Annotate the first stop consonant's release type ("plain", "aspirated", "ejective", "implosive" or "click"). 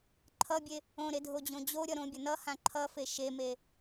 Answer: click